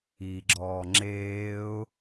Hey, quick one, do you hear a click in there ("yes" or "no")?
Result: yes